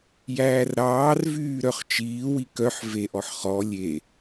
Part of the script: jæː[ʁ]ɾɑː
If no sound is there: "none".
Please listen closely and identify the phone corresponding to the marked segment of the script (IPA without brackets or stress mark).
r